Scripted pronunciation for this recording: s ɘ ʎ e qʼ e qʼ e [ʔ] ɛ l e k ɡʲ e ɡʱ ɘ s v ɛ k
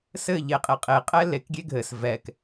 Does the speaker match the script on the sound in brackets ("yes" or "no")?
no